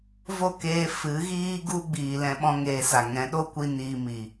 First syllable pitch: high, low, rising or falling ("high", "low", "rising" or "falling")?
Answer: falling